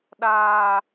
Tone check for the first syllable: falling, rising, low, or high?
high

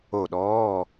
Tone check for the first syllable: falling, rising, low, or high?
falling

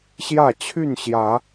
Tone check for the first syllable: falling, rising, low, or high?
falling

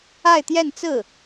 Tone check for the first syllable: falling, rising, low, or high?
falling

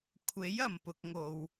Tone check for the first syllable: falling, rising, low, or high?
rising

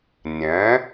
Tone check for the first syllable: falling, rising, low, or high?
rising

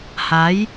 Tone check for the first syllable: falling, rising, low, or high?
rising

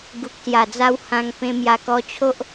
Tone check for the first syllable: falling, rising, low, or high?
low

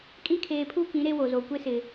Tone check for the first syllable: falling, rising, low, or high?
high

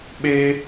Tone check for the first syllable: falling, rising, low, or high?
high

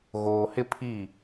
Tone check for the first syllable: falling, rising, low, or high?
low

